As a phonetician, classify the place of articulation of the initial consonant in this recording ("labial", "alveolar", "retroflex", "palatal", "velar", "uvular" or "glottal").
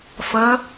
labial